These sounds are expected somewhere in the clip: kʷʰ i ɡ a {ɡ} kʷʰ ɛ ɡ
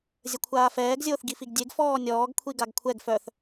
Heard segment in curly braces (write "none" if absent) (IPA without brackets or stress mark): ɡ